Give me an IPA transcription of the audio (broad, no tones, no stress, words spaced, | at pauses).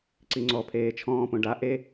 ǀiŋ͡ǀɔ pʰeːt͡ʃʰɔ̃ːpõ ɖa ʔe